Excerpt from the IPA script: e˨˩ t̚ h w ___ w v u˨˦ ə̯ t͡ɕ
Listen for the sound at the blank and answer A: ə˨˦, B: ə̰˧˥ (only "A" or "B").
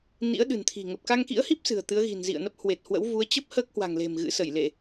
B